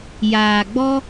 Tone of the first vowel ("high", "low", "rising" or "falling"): low